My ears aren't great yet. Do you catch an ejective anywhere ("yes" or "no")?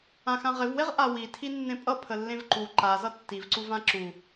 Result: yes